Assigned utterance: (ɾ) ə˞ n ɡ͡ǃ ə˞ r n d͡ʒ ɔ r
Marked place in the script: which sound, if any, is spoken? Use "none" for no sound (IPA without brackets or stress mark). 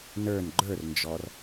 n